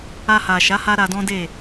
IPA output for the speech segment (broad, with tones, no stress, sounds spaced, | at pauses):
a˧ h a˨ ʃ a˨˦ h a˦ ɾ a˧ d ɔ̃˦ d e˦˨